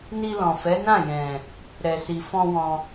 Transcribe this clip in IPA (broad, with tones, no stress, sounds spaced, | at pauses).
n i˧ l ɔ̃˨ f ɛ˨˦ n ã˦˨ j ɛ̃˨ | ɾ ɛ˨ s i˨ f ɔ̃˧ w ɔ̃˧